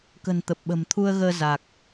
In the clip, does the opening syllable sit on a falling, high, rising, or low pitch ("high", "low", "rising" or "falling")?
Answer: low